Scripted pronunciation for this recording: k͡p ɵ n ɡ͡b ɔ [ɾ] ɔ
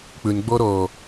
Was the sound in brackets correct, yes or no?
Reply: yes